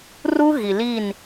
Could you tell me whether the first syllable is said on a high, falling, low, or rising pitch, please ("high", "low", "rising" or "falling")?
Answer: high